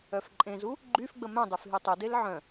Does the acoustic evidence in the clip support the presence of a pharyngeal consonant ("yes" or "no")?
yes